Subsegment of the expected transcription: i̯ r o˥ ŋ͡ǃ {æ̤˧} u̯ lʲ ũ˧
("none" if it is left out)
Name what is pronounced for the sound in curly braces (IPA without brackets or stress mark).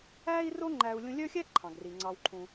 æ˧